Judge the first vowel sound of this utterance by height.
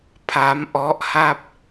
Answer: low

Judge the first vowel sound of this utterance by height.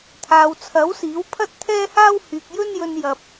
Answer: low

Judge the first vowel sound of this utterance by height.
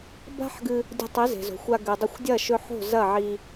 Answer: low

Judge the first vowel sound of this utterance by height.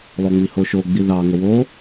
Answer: mid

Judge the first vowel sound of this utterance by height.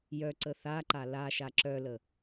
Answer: mid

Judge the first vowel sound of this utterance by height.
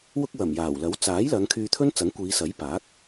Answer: high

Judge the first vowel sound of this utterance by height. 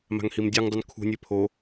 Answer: low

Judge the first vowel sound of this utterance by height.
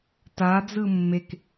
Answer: low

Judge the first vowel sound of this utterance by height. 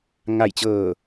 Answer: low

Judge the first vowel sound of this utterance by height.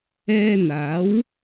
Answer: mid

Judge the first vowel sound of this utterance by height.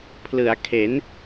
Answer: high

